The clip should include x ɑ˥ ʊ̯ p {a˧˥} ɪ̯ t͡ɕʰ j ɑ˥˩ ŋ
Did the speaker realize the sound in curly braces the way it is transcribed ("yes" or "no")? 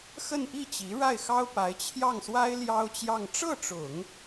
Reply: yes